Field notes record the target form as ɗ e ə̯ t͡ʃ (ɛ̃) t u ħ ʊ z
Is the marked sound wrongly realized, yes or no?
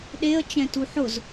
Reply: no